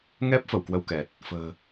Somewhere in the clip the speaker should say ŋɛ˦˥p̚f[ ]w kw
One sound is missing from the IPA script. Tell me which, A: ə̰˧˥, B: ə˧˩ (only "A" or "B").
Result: B